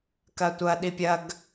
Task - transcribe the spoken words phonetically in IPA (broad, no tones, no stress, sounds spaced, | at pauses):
k ɐ tʷ ɐ ɗ i pʲ ɐ ɡ